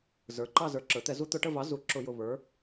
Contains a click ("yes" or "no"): yes